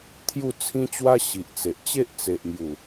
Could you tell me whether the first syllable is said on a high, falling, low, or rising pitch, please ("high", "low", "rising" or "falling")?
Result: falling